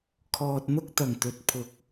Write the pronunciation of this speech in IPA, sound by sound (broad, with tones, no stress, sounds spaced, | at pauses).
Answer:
kʰ ɔː˧ t̚ n̪ ʊ˥ k̚ t̪ ɐ˨˩ ŋ t̪ ɵ˨˥ t̚ pʰ ʊ˨˥ k̚